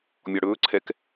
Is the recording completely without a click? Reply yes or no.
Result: no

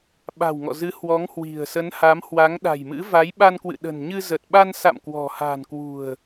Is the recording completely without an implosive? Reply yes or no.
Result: no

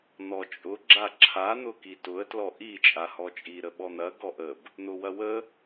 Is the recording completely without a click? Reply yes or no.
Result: no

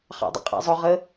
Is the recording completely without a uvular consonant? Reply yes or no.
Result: no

